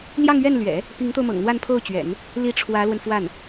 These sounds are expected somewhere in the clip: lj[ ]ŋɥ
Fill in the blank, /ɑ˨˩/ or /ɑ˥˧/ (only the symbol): ɑ˥˧